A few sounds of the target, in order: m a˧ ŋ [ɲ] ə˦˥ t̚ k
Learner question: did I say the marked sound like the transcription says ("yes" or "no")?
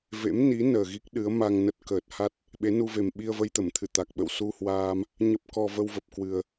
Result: no